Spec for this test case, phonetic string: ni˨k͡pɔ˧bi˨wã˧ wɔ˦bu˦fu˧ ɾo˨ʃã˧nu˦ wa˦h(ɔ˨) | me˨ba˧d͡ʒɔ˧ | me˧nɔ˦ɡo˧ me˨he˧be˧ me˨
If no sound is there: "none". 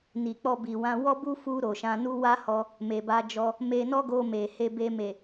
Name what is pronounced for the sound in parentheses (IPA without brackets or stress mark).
ɔ˧